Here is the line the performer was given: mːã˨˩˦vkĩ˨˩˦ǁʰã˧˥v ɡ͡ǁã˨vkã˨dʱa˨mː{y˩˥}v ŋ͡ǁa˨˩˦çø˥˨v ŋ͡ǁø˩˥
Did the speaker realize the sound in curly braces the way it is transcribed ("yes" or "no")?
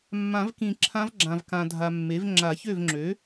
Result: no